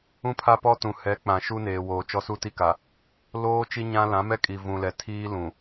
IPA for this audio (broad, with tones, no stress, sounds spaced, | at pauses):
ũ˦ pʰ a˦ p ɔ˦ t ũ˨ h ɛ˨˦ k͡p ã˨ ʃ u˦ n eː˨ w oː˨ t͡ʃ ɔ˦ s u˦ t i˦ k a˨ | l oː˦ t͡ʃ i˦ ɲ ã˦ l ã˨˦ m ɛ˦ kʼ i˨ v ũ˨ l ɛ˨ tʰ iː˦ l ũ˨